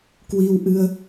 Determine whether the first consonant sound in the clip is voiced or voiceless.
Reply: voiceless